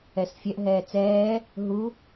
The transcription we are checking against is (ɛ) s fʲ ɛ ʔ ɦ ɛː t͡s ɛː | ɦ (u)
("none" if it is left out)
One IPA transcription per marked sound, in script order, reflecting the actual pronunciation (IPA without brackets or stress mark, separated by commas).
ɛ, u